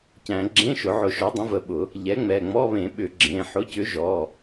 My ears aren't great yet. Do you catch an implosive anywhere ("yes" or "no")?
yes